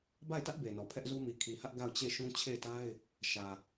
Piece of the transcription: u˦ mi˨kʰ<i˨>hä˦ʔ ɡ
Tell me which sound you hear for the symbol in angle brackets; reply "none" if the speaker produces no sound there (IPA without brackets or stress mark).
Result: i˨